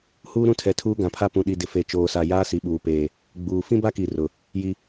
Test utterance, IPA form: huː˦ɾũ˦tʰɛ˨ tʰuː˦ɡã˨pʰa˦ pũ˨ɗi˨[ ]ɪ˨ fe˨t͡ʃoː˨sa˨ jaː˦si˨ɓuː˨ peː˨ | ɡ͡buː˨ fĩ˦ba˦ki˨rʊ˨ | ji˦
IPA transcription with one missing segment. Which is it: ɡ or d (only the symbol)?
d